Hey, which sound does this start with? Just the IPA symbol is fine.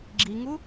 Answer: ɡ͡ǁ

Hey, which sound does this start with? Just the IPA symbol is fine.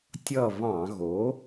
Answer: tʲ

